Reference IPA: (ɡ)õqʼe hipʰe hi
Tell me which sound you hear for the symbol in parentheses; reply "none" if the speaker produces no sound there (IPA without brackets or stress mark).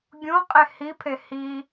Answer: ɡʲ